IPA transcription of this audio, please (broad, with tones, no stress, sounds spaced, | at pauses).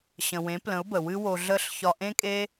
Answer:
ɕ ə̃˨ w ẽ˨˦ p l ə̃˨˦ ʊ̯ b ə˨ w ɨ˦ w o˧ ɮ ə˦˨ ɬ ç ɒ˧ ʔ ẽ˦ kʼ e˦